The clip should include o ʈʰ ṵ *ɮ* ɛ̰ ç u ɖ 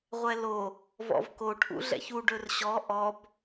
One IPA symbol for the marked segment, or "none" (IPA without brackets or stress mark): ɮ